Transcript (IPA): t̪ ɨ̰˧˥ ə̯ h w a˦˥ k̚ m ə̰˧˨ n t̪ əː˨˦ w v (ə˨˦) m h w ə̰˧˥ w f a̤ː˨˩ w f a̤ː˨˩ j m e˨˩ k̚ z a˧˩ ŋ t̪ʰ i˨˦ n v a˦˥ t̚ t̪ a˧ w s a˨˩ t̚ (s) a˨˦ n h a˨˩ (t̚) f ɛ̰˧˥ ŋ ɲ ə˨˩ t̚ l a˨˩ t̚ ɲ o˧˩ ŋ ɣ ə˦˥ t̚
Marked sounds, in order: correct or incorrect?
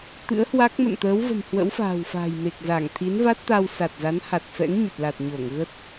incorrect: ə̤˨˩, incorrect: z, correct

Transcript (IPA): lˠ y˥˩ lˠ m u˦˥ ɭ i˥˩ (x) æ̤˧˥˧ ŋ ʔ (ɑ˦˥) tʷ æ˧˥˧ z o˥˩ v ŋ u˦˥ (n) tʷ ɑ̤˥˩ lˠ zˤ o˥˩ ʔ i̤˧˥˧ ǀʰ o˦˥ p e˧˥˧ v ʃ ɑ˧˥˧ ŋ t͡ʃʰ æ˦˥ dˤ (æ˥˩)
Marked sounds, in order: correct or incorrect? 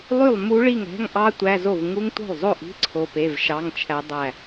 incorrect: ŋ, correct, incorrect: ŋ, correct

